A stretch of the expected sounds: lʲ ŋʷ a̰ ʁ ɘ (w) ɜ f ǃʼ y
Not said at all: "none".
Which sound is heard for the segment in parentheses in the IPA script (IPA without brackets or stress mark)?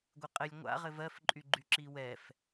v